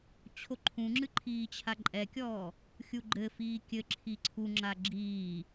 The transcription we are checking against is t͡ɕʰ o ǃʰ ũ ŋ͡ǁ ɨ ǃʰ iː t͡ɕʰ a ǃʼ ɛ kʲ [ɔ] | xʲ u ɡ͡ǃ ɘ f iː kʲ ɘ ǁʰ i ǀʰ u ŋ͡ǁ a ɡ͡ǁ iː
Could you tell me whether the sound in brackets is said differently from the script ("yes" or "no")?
yes